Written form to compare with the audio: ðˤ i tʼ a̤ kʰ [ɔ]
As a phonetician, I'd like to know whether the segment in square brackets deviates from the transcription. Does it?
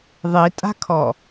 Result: no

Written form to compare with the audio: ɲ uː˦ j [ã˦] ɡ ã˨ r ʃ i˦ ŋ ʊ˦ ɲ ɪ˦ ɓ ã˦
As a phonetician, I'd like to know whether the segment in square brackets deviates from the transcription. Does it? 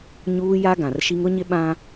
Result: yes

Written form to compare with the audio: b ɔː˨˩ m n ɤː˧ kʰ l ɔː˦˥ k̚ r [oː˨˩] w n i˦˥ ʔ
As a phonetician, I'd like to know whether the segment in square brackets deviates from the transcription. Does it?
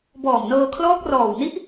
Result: yes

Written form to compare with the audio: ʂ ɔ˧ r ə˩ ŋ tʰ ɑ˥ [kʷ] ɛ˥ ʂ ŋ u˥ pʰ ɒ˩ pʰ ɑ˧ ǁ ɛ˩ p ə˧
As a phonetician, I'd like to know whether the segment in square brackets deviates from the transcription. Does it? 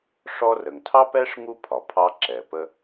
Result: yes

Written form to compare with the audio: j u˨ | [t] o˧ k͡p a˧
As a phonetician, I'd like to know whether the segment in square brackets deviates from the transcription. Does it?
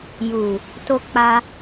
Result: no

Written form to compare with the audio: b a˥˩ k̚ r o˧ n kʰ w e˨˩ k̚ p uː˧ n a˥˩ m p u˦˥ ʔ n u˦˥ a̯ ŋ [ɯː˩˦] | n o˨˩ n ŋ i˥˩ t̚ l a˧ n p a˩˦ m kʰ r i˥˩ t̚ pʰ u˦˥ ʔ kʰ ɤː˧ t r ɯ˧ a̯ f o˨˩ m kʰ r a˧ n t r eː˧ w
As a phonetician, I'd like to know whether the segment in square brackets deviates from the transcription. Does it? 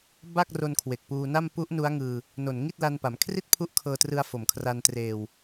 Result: yes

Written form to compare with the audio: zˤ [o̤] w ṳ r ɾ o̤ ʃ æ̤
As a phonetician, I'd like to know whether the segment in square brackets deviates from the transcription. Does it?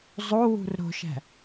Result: yes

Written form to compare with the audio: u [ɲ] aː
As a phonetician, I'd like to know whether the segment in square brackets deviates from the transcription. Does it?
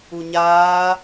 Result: no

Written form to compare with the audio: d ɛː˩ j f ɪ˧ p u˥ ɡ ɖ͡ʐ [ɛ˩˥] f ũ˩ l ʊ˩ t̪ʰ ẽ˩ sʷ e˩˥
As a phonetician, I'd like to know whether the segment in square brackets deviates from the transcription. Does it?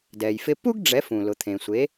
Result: no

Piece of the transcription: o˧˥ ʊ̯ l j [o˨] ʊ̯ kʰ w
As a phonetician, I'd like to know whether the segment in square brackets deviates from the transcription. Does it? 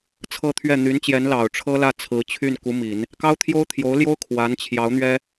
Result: yes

